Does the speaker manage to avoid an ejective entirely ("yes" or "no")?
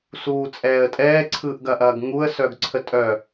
no